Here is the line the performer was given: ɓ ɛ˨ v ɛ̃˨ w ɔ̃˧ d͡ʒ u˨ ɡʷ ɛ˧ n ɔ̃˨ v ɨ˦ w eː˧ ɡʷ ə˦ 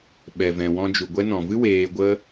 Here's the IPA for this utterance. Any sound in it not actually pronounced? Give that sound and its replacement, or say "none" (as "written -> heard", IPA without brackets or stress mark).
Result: none